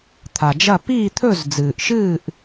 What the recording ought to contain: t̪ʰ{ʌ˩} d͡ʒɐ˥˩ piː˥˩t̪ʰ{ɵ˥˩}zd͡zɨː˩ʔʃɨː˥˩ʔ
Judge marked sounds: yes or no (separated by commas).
no, yes